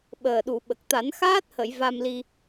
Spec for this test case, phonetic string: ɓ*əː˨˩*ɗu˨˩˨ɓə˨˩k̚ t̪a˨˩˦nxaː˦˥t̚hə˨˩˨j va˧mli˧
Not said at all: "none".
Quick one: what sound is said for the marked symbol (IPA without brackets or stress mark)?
əː˨˩